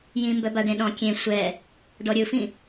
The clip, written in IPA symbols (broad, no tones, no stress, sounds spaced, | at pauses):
j ĩ m b œ b a ɖ ẽ ɗ ɔ̃ kʲ ẽ sʷ ɛ | ɖ ɔ ɾʲ ɯ f ĩ